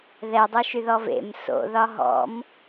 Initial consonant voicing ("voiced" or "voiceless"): voiced